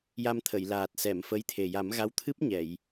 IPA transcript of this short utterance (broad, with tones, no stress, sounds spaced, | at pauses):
j a˧ m t̪ʰ ə˨˩˨ j l aː˨˩ t̚ s ɛ˨˩˨ m f ə˧˥ j t̪ʰ e˨˩ j a˨˩˦ m ɣ a˧˥ w t̪ʰ ɨ˦˥ p̚ ɲ ɛ˨˩˨ j